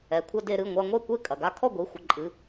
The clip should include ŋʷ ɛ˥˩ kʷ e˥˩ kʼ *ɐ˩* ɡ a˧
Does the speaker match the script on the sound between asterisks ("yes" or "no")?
yes